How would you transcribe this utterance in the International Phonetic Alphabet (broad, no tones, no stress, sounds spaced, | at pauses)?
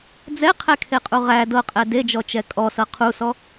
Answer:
d͡z ɛ qʰ ɛ kʰ e qʼ u ʁ æ d ɤ qʼ ɛ d e d͡ʒ ɔ t͡ʃ ɛ kʼ ɔ s ɤ qʰ u s ɔ